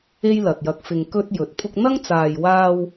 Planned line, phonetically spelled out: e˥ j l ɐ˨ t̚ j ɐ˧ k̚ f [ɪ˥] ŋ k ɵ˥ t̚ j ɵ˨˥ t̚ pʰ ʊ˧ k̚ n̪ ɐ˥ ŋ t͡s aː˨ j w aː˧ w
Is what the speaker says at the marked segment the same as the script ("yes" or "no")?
no